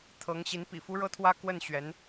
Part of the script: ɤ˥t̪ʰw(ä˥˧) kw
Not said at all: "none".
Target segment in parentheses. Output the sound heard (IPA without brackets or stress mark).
ä˥